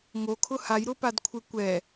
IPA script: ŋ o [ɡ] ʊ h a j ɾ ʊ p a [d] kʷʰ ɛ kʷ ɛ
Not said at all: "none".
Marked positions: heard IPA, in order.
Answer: kʰ, d

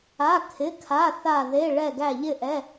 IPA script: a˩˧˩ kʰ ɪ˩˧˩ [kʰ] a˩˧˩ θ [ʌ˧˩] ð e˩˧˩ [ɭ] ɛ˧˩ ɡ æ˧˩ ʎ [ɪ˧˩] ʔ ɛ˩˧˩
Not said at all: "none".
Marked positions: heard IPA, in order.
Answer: kʰ, a˧˩, ɭ, ɪ˧˩

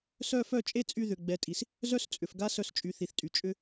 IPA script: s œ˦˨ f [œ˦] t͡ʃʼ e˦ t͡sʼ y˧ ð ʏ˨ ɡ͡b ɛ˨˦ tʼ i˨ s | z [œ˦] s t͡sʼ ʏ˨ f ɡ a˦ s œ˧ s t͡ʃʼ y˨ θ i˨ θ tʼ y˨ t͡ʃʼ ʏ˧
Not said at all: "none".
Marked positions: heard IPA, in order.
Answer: œ˦˨, œ˦

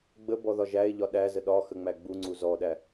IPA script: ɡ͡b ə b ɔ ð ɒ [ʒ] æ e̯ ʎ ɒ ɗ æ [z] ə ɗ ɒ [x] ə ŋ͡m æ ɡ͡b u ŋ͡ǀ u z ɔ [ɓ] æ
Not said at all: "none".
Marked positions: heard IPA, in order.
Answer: ʒ, z, x, ɗ

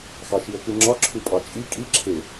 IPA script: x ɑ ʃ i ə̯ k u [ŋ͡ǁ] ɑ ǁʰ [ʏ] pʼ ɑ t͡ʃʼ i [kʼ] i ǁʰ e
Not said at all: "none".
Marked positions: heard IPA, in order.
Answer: ŋ͡ǁ, u, kʼ

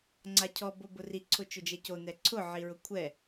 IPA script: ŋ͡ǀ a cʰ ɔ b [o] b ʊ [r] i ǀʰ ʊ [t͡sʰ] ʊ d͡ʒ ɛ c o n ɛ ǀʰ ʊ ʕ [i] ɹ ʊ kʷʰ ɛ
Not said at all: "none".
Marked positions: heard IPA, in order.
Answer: o, r, t͡ʃ, i

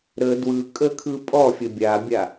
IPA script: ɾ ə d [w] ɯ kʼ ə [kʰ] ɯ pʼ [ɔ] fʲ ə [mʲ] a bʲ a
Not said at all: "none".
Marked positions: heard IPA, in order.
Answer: w, kʰ, ɔ, bʲ

